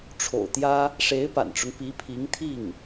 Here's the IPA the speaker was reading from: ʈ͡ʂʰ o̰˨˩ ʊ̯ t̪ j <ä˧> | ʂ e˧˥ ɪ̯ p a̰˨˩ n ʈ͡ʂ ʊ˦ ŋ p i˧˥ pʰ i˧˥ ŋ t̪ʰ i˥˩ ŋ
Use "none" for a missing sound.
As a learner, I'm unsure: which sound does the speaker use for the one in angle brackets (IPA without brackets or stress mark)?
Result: ä˥